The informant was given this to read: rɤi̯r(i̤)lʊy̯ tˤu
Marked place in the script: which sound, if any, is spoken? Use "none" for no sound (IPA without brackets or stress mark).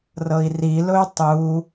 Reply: i